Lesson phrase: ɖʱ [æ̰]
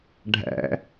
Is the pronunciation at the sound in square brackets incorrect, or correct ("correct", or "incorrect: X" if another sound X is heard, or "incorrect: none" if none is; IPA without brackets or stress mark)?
correct